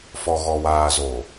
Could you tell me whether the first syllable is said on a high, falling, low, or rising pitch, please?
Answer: low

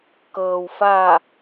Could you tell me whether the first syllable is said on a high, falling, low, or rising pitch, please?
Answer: low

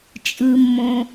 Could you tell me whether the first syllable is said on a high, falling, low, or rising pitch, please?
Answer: low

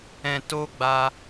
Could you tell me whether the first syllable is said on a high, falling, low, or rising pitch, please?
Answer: low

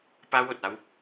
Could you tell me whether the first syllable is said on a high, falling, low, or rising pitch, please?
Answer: high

